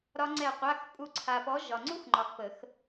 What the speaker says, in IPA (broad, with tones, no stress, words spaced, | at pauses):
ɾɒ˦˥ŋ͡ǀɛ˦˨qʷa˧˥˧xpʼu˦˨ ǀʰa˨pɔ˨˦ ʒɒ˨ŋ͡ǀu˦˥x ŋ͡ǃɒ˨xpə˨˩˦x